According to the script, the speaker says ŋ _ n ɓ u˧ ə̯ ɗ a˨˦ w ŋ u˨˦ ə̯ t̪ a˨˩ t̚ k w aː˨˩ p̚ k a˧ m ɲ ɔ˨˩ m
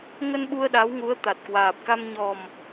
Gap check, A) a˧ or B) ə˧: B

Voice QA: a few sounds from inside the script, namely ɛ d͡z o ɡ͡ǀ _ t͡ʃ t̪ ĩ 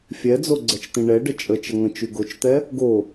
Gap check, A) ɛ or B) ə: A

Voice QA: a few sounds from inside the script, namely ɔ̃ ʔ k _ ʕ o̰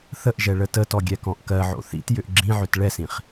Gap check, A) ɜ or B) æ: A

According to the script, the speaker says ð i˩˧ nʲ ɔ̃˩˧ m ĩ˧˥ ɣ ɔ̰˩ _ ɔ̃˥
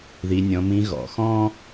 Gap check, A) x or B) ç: A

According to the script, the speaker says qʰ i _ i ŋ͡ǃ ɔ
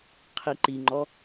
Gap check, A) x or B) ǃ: B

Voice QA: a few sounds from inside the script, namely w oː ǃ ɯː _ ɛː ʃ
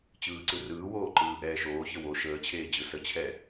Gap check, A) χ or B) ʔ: B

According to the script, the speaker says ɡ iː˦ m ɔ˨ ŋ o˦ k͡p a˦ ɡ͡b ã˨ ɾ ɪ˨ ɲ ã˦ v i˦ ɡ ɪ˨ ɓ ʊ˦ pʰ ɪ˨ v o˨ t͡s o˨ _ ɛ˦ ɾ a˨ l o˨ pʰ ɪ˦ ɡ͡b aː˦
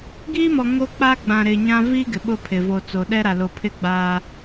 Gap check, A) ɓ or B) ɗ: B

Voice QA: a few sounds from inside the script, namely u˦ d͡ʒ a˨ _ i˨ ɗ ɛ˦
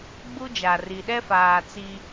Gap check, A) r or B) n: A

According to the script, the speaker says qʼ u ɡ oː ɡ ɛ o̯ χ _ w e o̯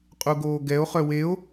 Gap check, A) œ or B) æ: A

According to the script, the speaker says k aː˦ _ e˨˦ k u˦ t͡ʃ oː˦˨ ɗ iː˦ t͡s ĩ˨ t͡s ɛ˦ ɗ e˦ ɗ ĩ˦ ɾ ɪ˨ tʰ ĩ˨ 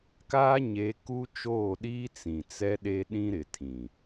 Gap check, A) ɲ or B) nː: A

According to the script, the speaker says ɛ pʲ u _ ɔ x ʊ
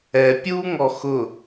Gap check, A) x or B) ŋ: B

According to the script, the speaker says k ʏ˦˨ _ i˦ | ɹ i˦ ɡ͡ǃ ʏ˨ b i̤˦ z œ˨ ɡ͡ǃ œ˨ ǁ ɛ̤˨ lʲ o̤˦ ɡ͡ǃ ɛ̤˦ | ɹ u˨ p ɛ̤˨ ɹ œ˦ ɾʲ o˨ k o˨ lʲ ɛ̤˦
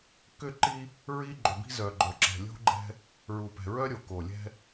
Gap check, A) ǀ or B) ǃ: B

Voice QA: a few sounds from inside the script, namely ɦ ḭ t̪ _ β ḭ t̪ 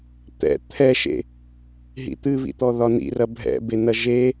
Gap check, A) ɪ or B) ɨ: B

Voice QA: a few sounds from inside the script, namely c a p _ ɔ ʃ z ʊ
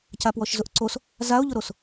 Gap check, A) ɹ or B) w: B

